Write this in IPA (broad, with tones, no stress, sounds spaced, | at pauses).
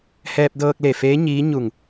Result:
h ɛː˧ p̚ d ɤː˧ k̚ l e˧˩ f eː˧˥ ɲ iː˧˥ ɲ u˧˩ ŋ